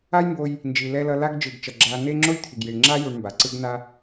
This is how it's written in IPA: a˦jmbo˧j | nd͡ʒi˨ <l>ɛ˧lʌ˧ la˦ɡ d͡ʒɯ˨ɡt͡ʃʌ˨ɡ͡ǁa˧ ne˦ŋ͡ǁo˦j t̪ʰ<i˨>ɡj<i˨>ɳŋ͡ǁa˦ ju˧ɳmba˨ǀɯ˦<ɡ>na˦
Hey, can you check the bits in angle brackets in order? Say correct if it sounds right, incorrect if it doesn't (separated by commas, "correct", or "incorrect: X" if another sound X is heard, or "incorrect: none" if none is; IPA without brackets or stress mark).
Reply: correct, correct, correct, correct